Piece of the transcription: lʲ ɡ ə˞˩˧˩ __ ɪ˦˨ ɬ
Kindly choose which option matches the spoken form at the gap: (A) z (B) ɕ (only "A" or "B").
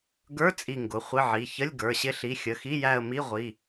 B